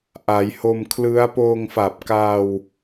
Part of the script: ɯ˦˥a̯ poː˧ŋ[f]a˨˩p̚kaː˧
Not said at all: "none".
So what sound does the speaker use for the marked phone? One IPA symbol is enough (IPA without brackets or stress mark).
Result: f